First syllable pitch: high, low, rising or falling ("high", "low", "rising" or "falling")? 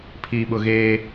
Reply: low